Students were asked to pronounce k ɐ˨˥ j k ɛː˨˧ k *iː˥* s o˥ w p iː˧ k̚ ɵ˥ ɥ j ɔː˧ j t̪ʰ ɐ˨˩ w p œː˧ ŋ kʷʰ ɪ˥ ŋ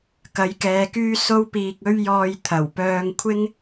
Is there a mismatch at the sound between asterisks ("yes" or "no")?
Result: yes